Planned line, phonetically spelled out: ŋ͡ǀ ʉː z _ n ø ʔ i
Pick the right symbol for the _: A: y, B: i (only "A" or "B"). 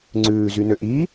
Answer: A